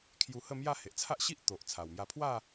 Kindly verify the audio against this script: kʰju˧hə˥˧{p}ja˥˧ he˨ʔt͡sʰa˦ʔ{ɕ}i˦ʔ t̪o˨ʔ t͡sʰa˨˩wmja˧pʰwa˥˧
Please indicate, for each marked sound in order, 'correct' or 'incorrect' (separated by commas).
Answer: incorrect, correct